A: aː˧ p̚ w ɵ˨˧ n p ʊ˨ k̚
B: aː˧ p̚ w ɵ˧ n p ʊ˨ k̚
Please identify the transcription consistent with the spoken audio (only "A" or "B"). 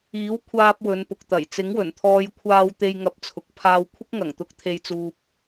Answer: A